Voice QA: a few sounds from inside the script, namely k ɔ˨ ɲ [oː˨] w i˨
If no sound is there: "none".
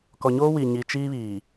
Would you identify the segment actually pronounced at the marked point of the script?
oː˦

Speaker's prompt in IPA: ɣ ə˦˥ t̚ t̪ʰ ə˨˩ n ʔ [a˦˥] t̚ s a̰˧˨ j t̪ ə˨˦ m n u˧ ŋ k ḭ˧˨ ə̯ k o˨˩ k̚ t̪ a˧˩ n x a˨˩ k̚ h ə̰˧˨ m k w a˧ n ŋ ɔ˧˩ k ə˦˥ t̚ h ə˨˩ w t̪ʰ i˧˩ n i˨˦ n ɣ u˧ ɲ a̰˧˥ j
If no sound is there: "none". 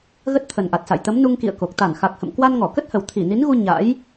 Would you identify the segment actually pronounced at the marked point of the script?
a˨˩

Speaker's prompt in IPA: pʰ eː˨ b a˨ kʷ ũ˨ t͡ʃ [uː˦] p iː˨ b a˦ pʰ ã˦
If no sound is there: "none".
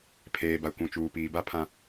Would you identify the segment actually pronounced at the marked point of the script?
uː˨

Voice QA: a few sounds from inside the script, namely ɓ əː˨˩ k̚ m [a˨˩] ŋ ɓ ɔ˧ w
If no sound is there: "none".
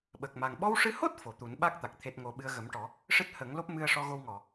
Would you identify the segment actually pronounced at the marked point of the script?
a˨˩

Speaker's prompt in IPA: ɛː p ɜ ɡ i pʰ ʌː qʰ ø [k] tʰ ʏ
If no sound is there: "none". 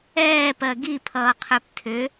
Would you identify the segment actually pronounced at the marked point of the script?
p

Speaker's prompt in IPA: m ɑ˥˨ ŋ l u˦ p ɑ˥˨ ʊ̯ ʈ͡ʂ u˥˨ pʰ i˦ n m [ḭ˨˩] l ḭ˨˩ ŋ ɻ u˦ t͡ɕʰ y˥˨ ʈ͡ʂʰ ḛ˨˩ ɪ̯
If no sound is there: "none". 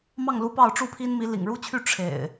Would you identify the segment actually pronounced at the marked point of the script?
i˨˦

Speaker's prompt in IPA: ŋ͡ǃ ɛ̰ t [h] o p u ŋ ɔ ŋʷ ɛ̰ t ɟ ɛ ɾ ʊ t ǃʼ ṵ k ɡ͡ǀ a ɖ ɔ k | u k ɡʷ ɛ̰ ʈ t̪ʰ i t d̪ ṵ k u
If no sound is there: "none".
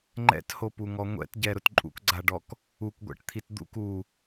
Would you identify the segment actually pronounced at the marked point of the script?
h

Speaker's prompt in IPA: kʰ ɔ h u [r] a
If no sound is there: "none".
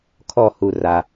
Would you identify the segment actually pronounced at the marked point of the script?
r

